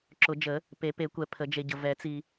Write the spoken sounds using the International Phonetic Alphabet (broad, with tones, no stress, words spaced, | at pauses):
ǁʊ˨˩˦d͡ʒə˨˩˦ | pe˨˩˦pe˨˩˦kʷɛ˨ pʰə˨˩˦d͡ʒe˨ɟə˨ vɛ˨˩˦t͡si˨